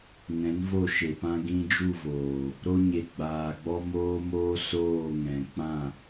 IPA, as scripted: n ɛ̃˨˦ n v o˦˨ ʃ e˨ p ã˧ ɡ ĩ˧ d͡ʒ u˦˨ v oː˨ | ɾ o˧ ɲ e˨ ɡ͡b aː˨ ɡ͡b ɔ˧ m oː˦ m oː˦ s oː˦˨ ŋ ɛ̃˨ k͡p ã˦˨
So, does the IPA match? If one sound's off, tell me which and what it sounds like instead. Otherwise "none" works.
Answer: none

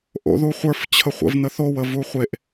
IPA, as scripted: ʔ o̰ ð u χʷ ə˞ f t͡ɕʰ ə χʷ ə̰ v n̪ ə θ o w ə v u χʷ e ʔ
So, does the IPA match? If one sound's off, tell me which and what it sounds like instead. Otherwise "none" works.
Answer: none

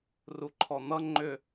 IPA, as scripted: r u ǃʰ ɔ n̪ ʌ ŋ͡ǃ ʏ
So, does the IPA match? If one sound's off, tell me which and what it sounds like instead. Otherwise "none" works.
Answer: none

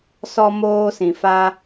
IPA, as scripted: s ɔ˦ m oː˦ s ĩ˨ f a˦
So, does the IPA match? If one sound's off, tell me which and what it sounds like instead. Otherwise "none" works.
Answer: none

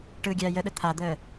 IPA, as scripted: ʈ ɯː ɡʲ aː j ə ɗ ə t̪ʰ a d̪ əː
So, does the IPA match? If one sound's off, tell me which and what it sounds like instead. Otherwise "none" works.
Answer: none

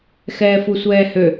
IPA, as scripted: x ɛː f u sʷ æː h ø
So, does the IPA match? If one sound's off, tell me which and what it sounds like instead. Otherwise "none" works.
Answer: æː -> ɛː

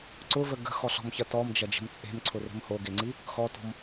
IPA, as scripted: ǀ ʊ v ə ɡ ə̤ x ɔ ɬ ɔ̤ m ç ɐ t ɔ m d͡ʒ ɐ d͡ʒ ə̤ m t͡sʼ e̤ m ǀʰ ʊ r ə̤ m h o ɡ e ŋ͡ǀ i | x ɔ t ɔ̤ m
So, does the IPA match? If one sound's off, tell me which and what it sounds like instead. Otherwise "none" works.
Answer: none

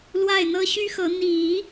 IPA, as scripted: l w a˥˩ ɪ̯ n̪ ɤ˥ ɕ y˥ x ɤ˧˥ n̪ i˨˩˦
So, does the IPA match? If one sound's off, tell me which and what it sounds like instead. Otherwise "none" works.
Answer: none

